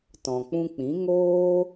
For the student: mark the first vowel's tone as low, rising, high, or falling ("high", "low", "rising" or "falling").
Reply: low